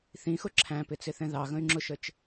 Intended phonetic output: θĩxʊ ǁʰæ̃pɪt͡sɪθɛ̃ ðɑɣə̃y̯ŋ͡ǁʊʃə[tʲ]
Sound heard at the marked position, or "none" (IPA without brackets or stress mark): t͡ʃ